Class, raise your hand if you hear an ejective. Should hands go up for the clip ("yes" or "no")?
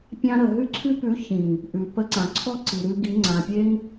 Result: no